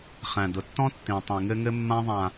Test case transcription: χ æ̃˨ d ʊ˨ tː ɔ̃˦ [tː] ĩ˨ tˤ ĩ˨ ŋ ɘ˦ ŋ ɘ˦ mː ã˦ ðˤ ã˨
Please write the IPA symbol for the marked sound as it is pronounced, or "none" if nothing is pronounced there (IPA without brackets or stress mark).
tː